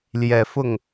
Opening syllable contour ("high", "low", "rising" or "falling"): low